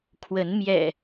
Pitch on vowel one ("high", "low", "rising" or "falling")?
rising